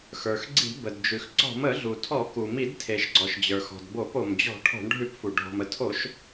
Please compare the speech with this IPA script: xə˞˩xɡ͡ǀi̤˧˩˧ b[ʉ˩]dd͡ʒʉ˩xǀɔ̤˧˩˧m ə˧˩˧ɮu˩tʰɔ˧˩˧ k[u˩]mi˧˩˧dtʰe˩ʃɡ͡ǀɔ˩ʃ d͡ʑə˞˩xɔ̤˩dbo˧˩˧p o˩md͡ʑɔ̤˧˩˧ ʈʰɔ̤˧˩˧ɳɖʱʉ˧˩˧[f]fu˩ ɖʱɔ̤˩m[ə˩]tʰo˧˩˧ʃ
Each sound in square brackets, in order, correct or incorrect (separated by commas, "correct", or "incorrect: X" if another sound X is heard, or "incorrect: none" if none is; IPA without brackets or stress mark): incorrect: ə˩, correct, incorrect: p, correct